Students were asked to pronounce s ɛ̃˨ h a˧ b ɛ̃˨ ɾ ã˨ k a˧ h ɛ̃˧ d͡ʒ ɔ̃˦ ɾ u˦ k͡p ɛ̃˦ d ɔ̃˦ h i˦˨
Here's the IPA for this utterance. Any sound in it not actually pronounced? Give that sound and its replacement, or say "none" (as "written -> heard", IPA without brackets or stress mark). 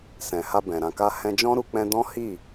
none